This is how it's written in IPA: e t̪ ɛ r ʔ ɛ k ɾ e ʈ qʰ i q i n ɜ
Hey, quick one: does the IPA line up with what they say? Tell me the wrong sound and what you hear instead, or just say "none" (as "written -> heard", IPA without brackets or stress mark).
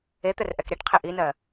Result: q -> ʔ